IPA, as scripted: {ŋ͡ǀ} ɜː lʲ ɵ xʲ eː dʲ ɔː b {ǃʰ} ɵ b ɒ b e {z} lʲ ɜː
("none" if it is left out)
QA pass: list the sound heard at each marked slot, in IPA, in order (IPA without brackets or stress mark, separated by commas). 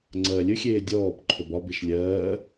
ŋ͡ǀ, ǃʰ, ʃ